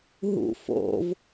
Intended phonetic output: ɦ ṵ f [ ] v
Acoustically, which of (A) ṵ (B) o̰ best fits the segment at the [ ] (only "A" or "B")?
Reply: B